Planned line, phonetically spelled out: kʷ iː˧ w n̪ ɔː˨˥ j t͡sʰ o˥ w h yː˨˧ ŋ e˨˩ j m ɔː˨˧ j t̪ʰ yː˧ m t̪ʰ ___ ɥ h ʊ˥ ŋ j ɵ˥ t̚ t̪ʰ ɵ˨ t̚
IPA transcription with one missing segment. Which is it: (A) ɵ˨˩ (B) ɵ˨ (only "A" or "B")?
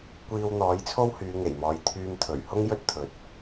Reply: A